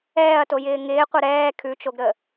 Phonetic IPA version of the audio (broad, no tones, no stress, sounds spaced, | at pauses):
ɛː ɐ̯ t o j ɪː ŋ ɪː qʷ ə ɾ ɛː kʰ ʉ t͡ʃ o ɡ ɾ ə